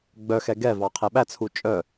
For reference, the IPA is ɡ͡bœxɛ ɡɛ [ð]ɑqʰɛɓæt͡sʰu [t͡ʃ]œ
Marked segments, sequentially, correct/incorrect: incorrect, incorrect

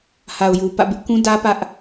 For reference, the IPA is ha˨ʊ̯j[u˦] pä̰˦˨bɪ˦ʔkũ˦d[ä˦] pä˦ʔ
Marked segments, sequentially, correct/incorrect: incorrect, correct

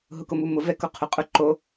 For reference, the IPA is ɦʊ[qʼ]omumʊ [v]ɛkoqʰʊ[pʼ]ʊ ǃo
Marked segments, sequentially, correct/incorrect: incorrect, correct, incorrect

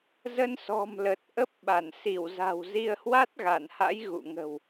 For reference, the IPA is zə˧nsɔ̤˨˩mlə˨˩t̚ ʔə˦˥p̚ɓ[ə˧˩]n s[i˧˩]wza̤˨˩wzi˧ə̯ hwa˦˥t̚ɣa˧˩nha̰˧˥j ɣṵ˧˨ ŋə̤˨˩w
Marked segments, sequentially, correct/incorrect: incorrect, correct

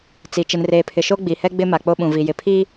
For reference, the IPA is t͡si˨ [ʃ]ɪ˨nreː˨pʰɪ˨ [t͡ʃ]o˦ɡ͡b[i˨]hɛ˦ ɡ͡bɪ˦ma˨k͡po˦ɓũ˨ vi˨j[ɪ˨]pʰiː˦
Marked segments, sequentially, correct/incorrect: incorrect, incorrect, correct, correct

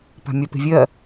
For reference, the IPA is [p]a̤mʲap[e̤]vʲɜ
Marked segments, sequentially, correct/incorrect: correct, correct

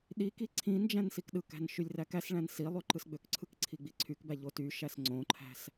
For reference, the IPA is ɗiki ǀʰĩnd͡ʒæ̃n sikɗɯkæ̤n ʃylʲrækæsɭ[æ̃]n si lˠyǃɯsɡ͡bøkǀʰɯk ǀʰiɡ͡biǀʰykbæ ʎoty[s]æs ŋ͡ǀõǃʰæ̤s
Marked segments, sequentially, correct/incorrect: correct, incorrect

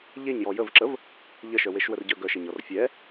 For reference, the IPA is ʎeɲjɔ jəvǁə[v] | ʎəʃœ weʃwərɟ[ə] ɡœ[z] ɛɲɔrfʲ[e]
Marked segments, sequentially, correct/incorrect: correct, incorrect, incorrect, incorrect

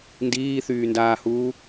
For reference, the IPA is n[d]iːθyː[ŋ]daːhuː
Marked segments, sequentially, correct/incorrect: correct, incorrect

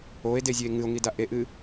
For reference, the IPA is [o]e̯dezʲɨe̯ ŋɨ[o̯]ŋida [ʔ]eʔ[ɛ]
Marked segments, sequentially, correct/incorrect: correct, correct, correct, incorrect

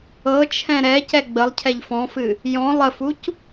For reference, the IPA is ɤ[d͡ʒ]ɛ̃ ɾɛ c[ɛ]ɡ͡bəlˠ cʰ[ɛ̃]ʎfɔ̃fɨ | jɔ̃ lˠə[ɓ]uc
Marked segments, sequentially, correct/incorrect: incorrect, correct, incorrect, incorrect

